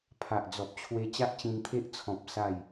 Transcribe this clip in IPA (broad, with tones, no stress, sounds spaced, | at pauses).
pʰ a˨ ʔ d͡z ɔ˨ p̚ t͡ɕʰ w e˧ t͡ɕ a˦ ʔ t͡ɕ ĩ˧ n t̪ʰ e˦ ʔ t͡sʰ ɔ̃˨ p̚ s a˥˧ j